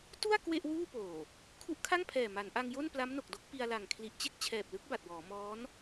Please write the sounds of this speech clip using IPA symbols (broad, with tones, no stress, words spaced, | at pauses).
tu˥˩a̯ kwe˥˩ʔwuː˥˩ poː˨˩ | kʰu˦˥ʔkʰa˥˩ŋpʰɛː˨˩ ma˩˦nʔa˧ŋjo˥˩n pla˦˥mno˨˩k̚do˦˥k̚ pi˧a̯la˨˩ŋ kʰli˨˩ʔt͡ɕe˥˩k̚ t͡ɕʰɛː˨˩p̚lɯ˦˥k̚ ba˨˩t̚wɔː˩˦ mɔː˦˥n